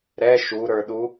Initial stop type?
implosive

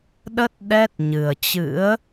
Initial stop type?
implosive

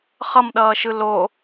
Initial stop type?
implosive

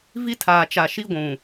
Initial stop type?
aspirated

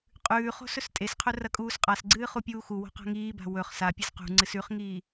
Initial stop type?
ejective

